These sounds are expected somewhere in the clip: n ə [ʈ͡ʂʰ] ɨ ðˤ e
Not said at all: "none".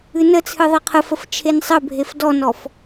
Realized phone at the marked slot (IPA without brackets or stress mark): t͡sʰ